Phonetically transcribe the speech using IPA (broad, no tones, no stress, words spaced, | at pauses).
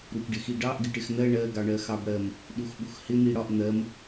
ɾupɖɪxiɖɑʔ ɡɪʈɪxn̪ɜ ɳɜ ɡɑɳɜxɑbɽɜm | ɗuxɓuxhɪ n̪iɽɒʔ n̪ɜm